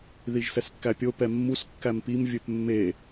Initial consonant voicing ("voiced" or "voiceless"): voiced